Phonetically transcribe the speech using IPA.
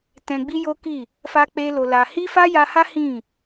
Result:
t ɛ̃˧ ɡ͡b i˦ j o˦ k i˦˨ | f a˦ k͡p e˦ l o˧ l a˧ h i˦ f a˦ j a˧ h a˦ h ĩ˦˨

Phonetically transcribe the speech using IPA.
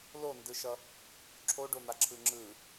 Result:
l o n d ɯ ʃ ʌ | ǁʰ o ɖ o n̪ a ǁʰ ɯ ŋ͡ǁ ɯ

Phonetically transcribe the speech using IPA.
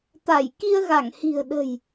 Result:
t̪ a˧˩ j k i˧ ə̯ ɣ a˧˩ ŋ h i̤˨˩ ə̯ ɗ ə̤˨˩ j

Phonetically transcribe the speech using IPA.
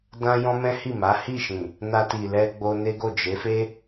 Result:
d ã˦ j ɔ̃˦ m ɛ̃˦ h i˦˨ m a˨˦ h i˦˨ ʃ ĩ˨ | n a˧ t i˨ l ɛ˧ ɡ͡b o˧ n e˦ ɡ o˦˨ d͡ʒ e˨˦ f e˦

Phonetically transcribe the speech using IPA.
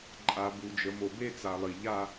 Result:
ǃʼ a˨ b u˨ d͡ʒ ə˨ m o˨ b e˦ t͡s a˨ lˠ i˨ ʎ a˦

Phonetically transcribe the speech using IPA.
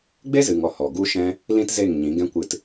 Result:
ɡ͡b e˦ z ɨ˨ ŋ ɔ˨ h ɔ˨ ɡ u˦ ʃ ɛ̃˦ | l ĩ˦ t z e˦˨ ŋ ɲ ĩ˨˦ ɡ ɛ̃˦ kʷ ɨ˧ t

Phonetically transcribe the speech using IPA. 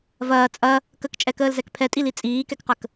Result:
v ɐː t͡sʼ ɐ | k ə k t͡ʃʼ ɛ k əː l z ɛ k pʰ ɛ tʼ i l i t͡sʼ iː k ɛ k q ə k

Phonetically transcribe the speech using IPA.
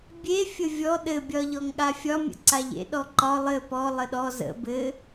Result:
bʲ e fʲ ə vʲ ɔ ɗ ɘ bʲ ɒ ʎ ɔ ŋ ɠ a fʲ ɒ mʲ ə̰ ǀ a ʎ ḛ ɗ ɔ ǃ ɒ lˠ ɘ p ɔ lˠ ə ɗ ɔ z ə̰ b ɘ

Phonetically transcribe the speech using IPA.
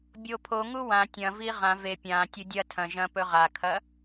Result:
bʲ o pʰ o ŋ u w ã tʲ ɐ̃ v i ʁ ã v e pʲ ã tʲ u dʲ ɐ tʰ ɐ̃ ʒ ɐ̃ p ɵ ʁ a kʰ ɐ

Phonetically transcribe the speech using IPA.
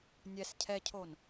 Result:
nʲ ɛ s cʰ ɛ cʰ o n

